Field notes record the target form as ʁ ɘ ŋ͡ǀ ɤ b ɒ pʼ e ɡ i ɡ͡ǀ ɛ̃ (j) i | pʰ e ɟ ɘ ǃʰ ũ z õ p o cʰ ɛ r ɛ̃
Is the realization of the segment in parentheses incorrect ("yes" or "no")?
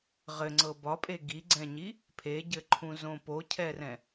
yes